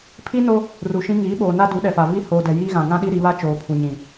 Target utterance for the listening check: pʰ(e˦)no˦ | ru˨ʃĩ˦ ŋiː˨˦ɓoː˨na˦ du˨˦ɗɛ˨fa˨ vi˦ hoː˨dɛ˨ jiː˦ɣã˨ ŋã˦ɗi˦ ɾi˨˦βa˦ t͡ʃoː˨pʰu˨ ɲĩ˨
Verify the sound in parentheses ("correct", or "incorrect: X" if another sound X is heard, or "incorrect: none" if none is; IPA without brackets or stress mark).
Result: incorrect: i˦